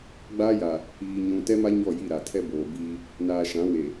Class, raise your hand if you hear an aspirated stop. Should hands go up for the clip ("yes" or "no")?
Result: yes